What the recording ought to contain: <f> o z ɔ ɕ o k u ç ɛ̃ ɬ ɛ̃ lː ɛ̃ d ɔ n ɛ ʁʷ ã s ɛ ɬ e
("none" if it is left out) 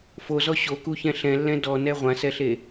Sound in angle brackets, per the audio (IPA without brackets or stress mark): f